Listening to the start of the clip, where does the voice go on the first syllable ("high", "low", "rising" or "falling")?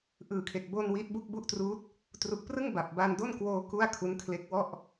low